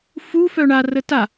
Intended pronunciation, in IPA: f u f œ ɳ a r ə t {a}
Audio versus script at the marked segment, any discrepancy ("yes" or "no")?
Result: no